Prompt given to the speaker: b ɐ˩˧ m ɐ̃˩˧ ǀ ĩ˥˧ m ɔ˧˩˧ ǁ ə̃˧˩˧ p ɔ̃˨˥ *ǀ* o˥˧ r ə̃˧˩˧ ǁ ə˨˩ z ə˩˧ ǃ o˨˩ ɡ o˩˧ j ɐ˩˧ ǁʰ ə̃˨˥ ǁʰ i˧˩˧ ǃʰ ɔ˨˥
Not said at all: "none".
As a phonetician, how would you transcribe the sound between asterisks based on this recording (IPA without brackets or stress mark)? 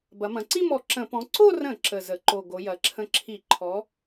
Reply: ǀ